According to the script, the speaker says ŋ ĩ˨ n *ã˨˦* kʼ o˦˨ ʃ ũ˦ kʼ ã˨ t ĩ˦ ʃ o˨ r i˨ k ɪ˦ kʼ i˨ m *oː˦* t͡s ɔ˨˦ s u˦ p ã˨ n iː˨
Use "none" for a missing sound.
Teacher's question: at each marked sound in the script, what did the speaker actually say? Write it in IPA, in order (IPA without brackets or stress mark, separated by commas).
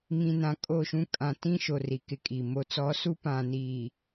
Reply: ã˨˦, o˦